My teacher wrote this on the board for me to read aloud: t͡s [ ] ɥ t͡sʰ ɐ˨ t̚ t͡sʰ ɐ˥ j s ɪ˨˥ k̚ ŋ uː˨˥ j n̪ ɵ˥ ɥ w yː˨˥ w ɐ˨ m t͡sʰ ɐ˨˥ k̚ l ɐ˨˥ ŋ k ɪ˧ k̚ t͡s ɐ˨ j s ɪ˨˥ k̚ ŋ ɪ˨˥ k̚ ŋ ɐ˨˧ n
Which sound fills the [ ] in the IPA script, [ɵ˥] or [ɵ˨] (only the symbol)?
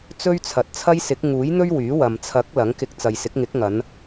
ɵ˥